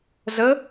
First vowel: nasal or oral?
oral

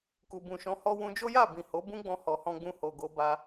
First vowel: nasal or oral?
oral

